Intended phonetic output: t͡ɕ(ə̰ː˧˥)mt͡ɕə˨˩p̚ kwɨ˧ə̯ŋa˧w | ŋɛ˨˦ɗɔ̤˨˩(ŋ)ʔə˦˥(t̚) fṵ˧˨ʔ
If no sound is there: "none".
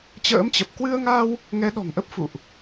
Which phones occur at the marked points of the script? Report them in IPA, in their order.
ə̰ː˧˥, ŋ, p̚

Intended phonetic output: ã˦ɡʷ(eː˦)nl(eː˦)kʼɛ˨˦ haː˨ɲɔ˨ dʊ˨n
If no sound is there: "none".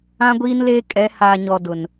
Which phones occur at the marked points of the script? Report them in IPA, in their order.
iː˦, eː˦

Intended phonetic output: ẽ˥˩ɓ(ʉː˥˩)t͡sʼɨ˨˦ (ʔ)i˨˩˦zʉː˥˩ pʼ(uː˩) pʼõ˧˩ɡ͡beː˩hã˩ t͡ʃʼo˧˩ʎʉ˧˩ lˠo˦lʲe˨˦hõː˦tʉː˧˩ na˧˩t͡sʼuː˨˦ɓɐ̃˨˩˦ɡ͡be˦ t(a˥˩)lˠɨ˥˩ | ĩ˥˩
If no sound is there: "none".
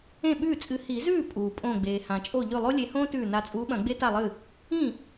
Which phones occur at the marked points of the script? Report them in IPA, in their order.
ʉː˥˩, h, uː˩, a˥˩

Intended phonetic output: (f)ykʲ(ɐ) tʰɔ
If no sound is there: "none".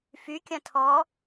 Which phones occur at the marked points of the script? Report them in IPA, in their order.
f, ɐ̃

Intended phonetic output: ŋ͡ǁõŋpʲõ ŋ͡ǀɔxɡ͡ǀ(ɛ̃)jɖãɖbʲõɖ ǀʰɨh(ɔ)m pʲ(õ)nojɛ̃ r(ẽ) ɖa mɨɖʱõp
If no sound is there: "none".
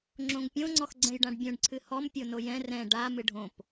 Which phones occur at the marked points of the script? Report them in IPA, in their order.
ɛ̃, ɔ, o, ɛ̃

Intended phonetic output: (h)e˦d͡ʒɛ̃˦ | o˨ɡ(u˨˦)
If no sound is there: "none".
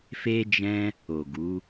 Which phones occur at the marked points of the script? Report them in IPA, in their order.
f, u˨˦

